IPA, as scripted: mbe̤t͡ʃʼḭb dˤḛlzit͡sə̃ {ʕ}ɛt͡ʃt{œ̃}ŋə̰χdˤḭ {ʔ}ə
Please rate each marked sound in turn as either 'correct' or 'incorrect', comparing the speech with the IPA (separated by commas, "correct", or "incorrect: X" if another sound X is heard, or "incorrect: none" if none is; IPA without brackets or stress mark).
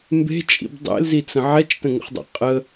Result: correct, incorrect: ə̃, incorrect: qʼ